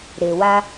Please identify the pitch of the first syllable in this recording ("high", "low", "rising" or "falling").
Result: low